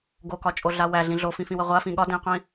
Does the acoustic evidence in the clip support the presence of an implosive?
yes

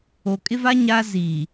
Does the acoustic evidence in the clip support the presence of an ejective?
yes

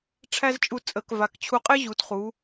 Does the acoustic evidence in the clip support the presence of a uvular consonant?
yes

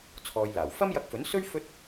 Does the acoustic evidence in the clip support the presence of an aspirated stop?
yes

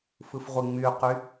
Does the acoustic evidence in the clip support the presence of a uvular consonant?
yes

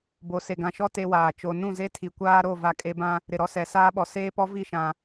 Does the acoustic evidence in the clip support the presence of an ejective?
yes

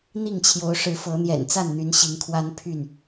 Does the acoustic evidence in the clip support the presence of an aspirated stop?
yes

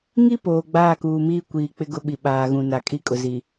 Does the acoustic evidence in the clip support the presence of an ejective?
yes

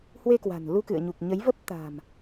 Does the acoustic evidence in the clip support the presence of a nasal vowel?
no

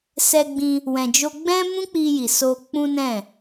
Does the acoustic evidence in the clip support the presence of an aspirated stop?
no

